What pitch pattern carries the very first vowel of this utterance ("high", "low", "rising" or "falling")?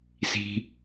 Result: low